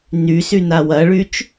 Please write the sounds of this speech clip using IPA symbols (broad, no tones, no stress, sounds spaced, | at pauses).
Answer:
n y s y n a w ɐ ɭ y t͡ʃ